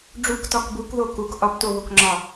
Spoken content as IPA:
ɖ͡ʐ u k t ɒ k b u k ð o k u k ʔ ɒ p t o β o k ŋ͡ǁ ɒ

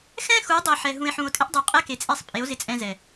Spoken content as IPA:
x ɛ̃˦ x u˨˦ dˤ i˨ ħ ɛ˨ ɦ ũ˨ e̯ ħ ũ˨ o̯ tʼ ɪ˦ ʔ dˤ o˨ qʼ ɛ˦ k e˨ t͡sʼ e˦˨ sˤ pʼ e˨˦ o̯ z ɪ˦ t͡sʼ ɛ̃˦ z ɛ˨

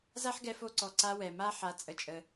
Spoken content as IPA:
z a˦ ħ ɡ ɛ˧ f o˧ ǀ ɔ˨ ǀ a˧ w ɛ˨ m a˦ ħ a˧ t͡sʼ ə˧ t͡ʃʼ ə˧

